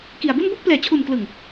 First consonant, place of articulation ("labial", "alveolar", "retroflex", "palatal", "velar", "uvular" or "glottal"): velar